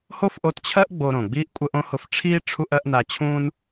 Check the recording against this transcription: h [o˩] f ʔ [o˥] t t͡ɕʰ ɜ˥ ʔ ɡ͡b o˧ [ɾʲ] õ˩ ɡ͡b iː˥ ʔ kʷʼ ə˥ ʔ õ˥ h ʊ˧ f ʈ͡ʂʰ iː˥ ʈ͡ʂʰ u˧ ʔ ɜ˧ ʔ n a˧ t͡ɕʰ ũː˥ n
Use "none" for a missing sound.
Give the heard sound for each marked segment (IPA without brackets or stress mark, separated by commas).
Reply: o˥, o˧, ɾ